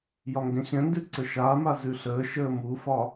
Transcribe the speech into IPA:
j ɒ ŋ ɡ ɛ̃ ɕ ɛ̃ n d ʉ ǀ ə ʃ aː m a z ʉ ɬ əː ʃ əː m u f ɒ

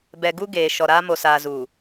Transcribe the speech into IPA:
b ɛ˨ ɡ u˦ ɡ eː˨ ʃ ɔ˨ ɾ aː˦ m o˨ s aː˨ z uː˨

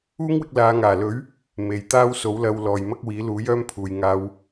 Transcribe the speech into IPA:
uː˥ ŋ w ɪ˧ k̚ l aː˨˧ ŋ aː˨˩ l ɵ˨˥ ɥ | m e˨ j t̪ aː˥ w s o˨˥ w l ɐ˧ w l ɔː˨ j m ɐ˥ k̚ w iː˨˥ l uː˨˥ j œː˥ m pʰ uː˨ j ŋ aː˧ w

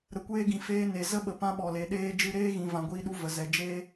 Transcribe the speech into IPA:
ɾ ə˨ kʷ eː˧ ɡ ĩ˨ f eː˧ n e˨ z ə˦ ɓ ə˨ p ã˦ ɓ ɔ˨ l e˨ ɗ eː˧ d͡ʒ ɨ˧ ɾ eː˦ ɣ ĩ˨ v ã˨ ɡʷ iː˧ ɗ u˧ v ə˨ z ɛ˨ d͡ʒ eː˦

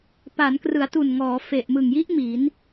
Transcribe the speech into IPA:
p a˩˦ n k r ɯ˩˦ a̯ t u˨˩ n ŋ ɔː˩˦ f e˨˩ ʔ m ɯ˨˩ ŋ j i˦˥ ʔ m i˩˦ n

